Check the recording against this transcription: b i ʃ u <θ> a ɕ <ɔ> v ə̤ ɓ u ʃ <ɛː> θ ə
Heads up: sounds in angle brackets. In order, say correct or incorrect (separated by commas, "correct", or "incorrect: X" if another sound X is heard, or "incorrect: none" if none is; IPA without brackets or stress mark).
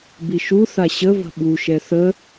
correct, incorrect: ə, incorrect: ɛ